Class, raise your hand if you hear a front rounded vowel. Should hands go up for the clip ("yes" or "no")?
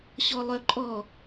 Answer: yes